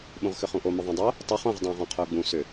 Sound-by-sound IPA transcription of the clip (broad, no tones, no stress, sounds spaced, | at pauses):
ɓ ũ ʁ x ʏ χ ũ ʔ o m ʊ ðˤ ã dˤ o | tˤ ʊ χ õ ʁ dˤ õː ʁ ɔ̃ qʰ ʊː ɡ͡b ũ s ʏ